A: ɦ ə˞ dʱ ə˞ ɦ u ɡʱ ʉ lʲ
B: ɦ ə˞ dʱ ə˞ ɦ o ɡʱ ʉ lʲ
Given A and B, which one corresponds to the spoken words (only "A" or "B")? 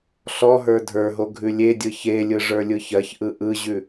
B